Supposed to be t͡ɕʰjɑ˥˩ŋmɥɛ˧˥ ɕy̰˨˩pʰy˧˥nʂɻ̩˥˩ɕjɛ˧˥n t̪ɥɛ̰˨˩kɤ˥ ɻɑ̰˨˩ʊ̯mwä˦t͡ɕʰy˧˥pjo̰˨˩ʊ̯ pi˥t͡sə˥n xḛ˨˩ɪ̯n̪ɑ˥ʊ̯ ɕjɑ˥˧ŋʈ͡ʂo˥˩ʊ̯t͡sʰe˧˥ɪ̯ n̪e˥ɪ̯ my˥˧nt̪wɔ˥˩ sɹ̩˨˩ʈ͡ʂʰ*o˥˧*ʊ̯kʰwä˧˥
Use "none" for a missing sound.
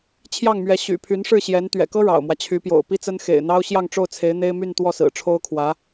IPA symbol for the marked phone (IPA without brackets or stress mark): o˥